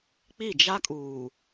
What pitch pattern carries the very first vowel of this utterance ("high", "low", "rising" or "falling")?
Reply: falling